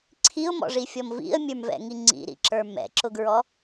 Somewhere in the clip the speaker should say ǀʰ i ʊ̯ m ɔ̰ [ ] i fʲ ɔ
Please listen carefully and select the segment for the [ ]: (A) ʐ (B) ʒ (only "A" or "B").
A